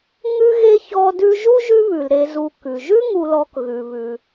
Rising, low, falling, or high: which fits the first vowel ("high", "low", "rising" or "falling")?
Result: high